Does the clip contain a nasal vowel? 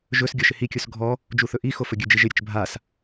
no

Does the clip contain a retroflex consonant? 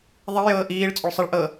yes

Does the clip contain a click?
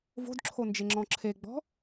yes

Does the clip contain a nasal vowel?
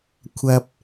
no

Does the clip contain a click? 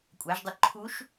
yes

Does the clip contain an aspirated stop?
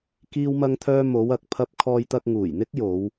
yes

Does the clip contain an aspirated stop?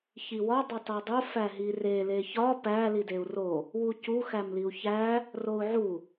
no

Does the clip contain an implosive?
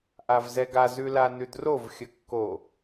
no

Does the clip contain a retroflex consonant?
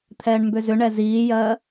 yes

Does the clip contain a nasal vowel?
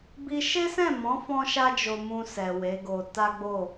yes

